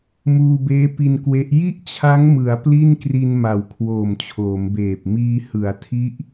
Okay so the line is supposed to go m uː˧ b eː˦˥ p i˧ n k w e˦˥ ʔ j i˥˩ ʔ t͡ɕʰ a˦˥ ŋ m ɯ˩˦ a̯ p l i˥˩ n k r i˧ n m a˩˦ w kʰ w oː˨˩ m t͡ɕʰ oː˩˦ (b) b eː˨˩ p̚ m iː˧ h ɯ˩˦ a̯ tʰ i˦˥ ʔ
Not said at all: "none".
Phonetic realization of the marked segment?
m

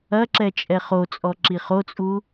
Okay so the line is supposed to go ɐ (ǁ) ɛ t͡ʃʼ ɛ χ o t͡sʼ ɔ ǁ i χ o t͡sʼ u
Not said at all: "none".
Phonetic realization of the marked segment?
ǁ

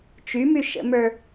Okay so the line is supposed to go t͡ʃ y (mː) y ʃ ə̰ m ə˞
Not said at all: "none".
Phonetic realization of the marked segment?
m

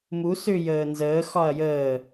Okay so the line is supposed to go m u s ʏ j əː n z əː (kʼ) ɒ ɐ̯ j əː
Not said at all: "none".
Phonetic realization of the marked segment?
x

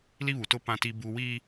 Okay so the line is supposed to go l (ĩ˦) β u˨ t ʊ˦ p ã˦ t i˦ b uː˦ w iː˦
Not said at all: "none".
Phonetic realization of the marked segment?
i˦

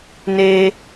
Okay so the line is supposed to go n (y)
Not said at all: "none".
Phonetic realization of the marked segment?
e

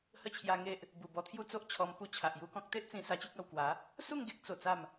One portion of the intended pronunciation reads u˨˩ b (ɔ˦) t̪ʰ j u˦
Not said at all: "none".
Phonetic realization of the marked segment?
ɔ˧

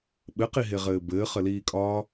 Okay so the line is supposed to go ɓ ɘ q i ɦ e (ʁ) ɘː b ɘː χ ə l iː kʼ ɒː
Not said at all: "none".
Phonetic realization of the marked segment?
ʁ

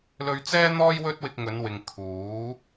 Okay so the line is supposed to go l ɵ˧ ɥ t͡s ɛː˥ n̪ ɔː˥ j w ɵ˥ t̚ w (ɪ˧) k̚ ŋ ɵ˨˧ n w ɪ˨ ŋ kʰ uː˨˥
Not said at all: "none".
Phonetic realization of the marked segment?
ɪ˧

